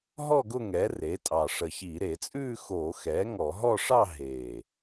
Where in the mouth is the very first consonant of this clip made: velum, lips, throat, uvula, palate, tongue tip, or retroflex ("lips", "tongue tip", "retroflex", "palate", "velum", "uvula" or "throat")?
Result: throat